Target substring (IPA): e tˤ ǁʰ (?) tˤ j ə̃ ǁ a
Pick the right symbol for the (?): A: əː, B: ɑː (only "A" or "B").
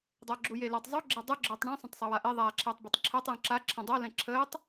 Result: A